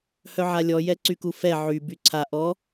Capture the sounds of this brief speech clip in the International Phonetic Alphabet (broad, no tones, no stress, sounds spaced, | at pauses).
h œ ʕ a lʲ ɔ j ɛ ǀ y k u f ɛ ʕ y b y ǀʰ a ʔ ɔ